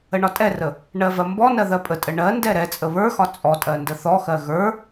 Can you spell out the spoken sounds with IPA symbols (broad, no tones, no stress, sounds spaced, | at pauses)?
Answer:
ə ɳ ɒ tʼ ɛ r ə | ɳ ɜ v ɜ m b ɔ n ɜ ð ɜ pʼ ə tʼ ə ɳ ɜ n d ɛ ɾ ɛ t͡sʼ ə β ə˞ x ɒ t͡sʼ ɔ tʼ ɜ n d ə θ ɔ x ɜ ɣ ə˞